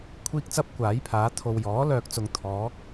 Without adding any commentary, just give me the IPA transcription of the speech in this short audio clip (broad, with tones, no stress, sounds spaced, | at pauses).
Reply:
kʷʰ iː˥ k̚ t͡s ɐ˥ p̚ kʷ aː˨˥ j pʰ aː˨˥ t̪ʰ o˨ w j ɔː˨˥ l œː˨ k̚ t͡s ʊ˨˧ ŋ t̪ʰ ɔː˨˥ k̚